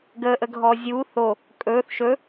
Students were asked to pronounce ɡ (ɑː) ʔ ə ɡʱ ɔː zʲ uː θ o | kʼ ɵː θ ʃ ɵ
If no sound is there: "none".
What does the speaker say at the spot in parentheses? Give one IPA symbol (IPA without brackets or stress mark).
əː